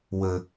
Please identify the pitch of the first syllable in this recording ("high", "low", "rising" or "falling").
low